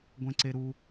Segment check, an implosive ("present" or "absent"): absent